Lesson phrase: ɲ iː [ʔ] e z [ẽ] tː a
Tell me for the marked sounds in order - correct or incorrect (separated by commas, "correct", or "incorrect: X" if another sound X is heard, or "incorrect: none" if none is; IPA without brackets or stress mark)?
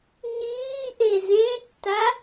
correct, correct